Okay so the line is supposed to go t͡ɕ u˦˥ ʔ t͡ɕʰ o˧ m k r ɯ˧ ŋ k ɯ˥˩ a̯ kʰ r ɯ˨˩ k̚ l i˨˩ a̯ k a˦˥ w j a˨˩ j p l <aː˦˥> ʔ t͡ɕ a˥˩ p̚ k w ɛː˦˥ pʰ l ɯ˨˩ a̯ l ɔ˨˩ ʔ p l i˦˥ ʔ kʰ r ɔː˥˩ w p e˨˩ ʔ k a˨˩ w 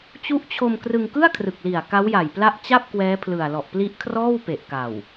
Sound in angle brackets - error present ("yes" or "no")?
yes